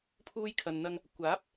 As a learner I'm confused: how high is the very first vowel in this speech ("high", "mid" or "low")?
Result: high